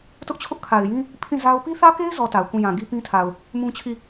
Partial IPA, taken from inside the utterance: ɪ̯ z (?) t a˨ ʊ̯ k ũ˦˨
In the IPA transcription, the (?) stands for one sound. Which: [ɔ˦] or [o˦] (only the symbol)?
ɔ˦